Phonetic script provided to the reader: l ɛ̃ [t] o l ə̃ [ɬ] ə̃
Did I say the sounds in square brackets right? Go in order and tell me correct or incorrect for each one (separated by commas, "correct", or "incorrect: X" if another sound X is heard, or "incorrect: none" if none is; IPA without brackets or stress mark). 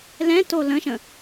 correct, incorrect: ʃ